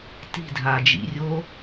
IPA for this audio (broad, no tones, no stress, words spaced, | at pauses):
ti̤dʱaːd͡ʒḭrʲoː